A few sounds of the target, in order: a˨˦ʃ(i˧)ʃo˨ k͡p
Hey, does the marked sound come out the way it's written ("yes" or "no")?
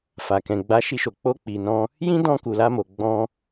yes